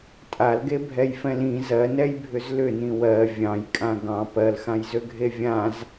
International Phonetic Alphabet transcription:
tʼ a l ɡ e bʱ ɛ j f ɛ̃ l ĩ z ɜ n ɛ j bʱ ʏ z l ʏ n ĩ w ɜ vʲ ɑ̃ j kʼ ã ɡ ɑ̃ p ɜ l x ã j z ø ɡʱ e vʲ ã z

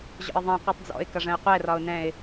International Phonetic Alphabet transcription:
ʑ ɔ̰ ɪ̯ ðˤ ɛ̃ qʷ ɨ tˤ d͡z ɔ̰ ɪ̯ k ʌ ʐ ə̃ ɪ̯ qʷ ɛ r ɒ ʊ̯ n ɛ̃ ɪ̯

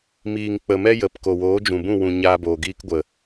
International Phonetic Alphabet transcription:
m iː˨ ŋ k͡p ə˨ m ɛ˦ j ə˨ p k o˨ w oː˨˦ d͡ʒ ũ˨ b ũ˦˨ w ũ˨ ɲ aː˧ b oː˨ ɡ iː˧ k ɡʷ ə˨

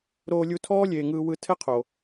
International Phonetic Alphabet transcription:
ɾ oː˧ lʲ u˧ tʰ ɔː˦ lʲ eː˨ ŋ ɯː˧ w ɯ˧ tʰ ɛ˦ qʰ o˨

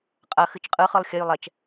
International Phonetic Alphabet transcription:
qʼ ɐ x ɨ t͡ʃ qʼ ɯ χ ɯ lˠ xʲ ɐ j lˠ ɛ t͡ʃ

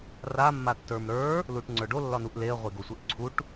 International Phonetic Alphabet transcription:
r a mː a tː ə˞ m ɾ ə˞ | l u ʈ ŋ͡ǀ ə˞ ɖ o lː ɒ n u ʔ l e ə̯ ʁʷ e ɡ o sʷ e ʔ ǀʰ u ʈ

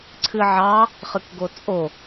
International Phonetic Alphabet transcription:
ǀʰ ɨ ʕ ɑ | χ ɨ k ɡ o t͡sʼ o

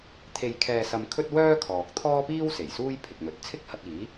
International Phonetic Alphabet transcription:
t̪ʰ e˧ j kʰ ɛː˧ s ɐ˧ m kʰ ɵ˥ t̚ w œː˥ kʰ ɔː˨ k̚ t̪ʰ ɔː˥ p iː˥ w s e˨˩ j s uː˥ j pʰ ɪ˨ k̚ n̪ ɵ˨˥ t̚ t͡sʰ ɪ˥ k̚ h ɐ˧ t̚ iː˨˥

